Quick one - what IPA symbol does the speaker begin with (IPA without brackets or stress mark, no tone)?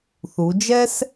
θ